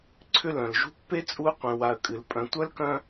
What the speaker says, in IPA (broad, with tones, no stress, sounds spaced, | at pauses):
ǀʰ ʏ˦ l œ̃˩ l ʒ ṳ˦ pː e˥ t͡sʼ u˦ ə̯ qʷ ẽ˨ w a˨ ə̯ kʼ ɨ˩ l pʼ œ̃˨ tʷ œ˥ l k œ̃˦